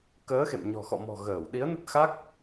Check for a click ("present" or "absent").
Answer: absent